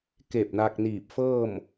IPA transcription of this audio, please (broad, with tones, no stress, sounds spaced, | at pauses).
k e˧˩ p̚ n a˧ k̚ n iː˧˩ p̚ f ɤː˥˨ m